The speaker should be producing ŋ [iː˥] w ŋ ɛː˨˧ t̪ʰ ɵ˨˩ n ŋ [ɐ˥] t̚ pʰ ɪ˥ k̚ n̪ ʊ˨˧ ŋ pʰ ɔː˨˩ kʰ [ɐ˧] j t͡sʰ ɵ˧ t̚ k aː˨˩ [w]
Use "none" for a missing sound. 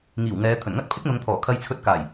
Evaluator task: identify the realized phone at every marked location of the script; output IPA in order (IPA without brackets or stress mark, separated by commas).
iː˨˩, ɐ˥, ɐ˧, j